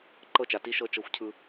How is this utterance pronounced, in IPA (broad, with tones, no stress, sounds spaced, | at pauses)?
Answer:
ǃ ɤ˥ t͡ʃ a˩˧ t i˧˥ ʃ ɤ˧ t͡ʃ ɤ˧ xʷ cʰ ɯ˧